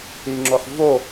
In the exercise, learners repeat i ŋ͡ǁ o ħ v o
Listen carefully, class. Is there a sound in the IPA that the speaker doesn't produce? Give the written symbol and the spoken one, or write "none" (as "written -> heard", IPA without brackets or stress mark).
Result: none